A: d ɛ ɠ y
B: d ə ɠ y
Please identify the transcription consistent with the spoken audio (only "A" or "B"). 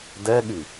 A